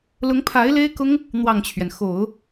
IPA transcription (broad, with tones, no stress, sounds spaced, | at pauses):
l ʊ˧˥ ŋ pʰ a˧˥ ɪ̯ l e˥ ɪ̯ k ʊ˥ ŋ | n̪ w ɑ˥˩ ŋ t͡ɕʰ ɥ ɛ˩ n x o˨˩˦ ʊ̯